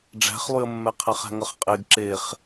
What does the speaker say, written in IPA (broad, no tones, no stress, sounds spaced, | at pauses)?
ɖ͡ʐ æ̤ χ lˠ y ə̯ mː ɛ qʰ æ χ æ̤ ŋ ʌ χ qʼ e ɡ ǁ e χ